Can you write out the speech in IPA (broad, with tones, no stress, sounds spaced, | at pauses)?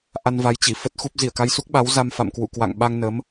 ʔ a˧ n v a˨˦ j t͡ɕ i˧˩ f ə˦˥ t̚ x u˦˥ p̚ z i˧˩ ə̯ k a˧ j s u˦˥ k̚ ɓ a˨˦ w z a˧ m f a̰˧˨ m k w ṵ˧˨ k w a̰˧˨ ŋ ɓ a˧ ŋ n ə˨˦ m